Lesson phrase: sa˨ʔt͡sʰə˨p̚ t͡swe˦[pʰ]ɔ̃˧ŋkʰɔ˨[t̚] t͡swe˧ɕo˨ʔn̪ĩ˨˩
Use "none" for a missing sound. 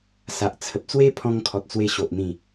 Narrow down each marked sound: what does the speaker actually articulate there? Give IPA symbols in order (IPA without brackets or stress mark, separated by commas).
pʰ, t̚